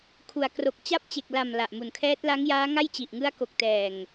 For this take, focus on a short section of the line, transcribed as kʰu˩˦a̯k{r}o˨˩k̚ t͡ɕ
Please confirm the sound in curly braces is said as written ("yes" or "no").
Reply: yes